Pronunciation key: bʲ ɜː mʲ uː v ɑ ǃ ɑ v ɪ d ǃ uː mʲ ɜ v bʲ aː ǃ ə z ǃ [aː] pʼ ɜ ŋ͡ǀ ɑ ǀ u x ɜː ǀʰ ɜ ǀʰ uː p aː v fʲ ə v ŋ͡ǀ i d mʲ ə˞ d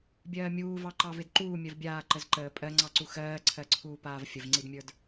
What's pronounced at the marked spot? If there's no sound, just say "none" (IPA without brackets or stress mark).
əː